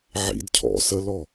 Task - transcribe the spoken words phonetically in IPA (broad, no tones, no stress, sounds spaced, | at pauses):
ʕ ḭ d cʰ ɔ̰ s ə l ɔ